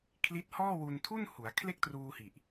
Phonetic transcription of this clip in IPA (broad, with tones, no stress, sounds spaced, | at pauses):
kʰ l i˦˥ t̚ h ɔː˥˩ w u˧ n tʰ u˥˩ n h u˩˦ a̯ kʰ l e˥˩ k̚ t r uː˧ h i˨˩ ʔ